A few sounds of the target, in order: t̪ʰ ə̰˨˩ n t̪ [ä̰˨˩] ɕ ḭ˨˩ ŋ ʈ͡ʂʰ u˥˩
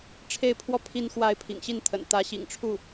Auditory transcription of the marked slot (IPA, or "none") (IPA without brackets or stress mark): ä˧˥